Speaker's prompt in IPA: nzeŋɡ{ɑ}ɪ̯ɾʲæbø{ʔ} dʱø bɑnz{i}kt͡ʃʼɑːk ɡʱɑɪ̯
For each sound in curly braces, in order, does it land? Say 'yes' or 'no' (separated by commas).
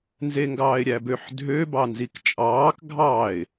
no, no, yes